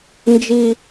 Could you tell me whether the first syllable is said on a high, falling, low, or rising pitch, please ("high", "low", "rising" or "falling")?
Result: high